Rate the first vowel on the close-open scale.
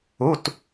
close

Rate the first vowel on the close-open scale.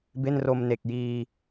mid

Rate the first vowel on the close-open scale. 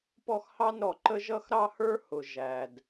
mid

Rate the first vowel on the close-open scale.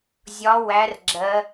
open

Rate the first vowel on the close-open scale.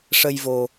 mid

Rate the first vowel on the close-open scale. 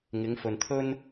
close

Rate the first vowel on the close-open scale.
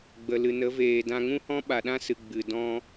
mid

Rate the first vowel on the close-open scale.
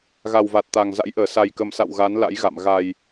open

